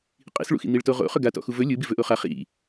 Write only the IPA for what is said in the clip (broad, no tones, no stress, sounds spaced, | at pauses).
qʼ ḭ s ɭ ṵ x ḭ n̪ i ɭ t o ʁ o̰ χ ɵ ɡ a t ɔ̰ x u v ɵ lʲ ɯ b i v ɵ ʔ o χ a χ ḭ